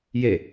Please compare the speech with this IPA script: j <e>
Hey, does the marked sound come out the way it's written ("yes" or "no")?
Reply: yes